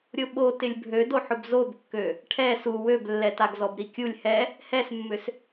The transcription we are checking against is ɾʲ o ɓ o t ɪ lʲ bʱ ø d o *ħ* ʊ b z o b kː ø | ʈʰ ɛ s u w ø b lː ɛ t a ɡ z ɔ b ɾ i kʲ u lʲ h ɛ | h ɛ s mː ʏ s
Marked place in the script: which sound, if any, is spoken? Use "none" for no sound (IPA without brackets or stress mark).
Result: ħ